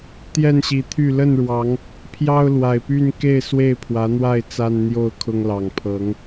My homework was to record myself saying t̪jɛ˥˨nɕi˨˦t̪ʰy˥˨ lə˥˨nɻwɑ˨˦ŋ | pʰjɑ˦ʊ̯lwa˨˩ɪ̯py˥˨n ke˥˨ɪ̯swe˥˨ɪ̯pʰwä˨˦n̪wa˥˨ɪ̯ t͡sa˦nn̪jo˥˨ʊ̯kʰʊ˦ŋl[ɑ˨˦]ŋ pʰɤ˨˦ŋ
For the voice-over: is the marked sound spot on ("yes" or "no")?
no